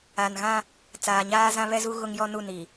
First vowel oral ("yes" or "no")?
yes